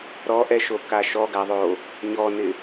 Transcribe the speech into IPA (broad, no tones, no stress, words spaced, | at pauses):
ɾɔʔɛʃoka ʃɔɡaðˤo | ɲɔnɪ